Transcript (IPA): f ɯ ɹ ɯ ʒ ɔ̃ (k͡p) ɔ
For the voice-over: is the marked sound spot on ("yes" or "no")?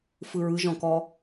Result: no